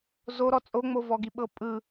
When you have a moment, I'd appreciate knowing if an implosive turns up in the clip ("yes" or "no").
yes